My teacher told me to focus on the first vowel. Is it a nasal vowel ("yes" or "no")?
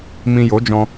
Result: yes